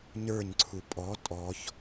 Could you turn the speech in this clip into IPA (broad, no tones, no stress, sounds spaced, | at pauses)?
ɲ ə˞ ɲ ǀʰ u pʼ ɔ tʼ ɔ ç